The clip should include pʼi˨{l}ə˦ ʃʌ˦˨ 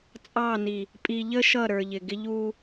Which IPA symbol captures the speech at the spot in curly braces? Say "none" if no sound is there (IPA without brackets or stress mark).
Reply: ʎ